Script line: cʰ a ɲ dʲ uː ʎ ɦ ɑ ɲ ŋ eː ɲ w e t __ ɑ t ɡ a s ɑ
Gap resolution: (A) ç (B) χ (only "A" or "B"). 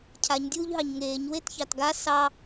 A